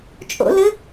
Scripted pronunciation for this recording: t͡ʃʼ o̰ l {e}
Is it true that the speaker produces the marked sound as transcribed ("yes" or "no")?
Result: no